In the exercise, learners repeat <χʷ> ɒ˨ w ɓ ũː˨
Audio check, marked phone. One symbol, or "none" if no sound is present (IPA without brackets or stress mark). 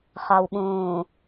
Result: χ